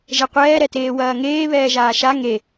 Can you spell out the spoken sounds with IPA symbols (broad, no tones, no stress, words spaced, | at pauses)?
ʒɛqʷɛːɾɛteː wɐːŋeː βɛːʒaːʃa ŋe